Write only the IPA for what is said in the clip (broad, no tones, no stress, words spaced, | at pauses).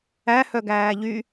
æhœɡæː ʎy